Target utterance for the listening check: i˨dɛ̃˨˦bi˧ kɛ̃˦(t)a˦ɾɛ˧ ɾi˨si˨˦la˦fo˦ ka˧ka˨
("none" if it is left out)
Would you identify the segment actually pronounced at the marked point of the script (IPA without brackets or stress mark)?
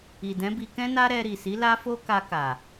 n